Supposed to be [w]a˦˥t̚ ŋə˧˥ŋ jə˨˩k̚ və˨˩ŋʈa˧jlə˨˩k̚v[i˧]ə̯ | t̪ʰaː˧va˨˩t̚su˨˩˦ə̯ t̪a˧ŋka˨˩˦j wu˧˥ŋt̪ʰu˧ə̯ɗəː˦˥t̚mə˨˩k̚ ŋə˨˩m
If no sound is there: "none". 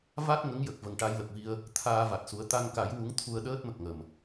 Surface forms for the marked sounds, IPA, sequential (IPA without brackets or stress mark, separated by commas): v, i˧